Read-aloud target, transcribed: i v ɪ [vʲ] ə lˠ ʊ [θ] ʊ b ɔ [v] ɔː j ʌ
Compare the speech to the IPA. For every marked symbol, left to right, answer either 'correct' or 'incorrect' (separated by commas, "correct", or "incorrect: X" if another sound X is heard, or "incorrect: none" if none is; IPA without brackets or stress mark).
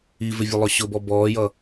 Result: correct, incorrect: ɕ, incorrect: b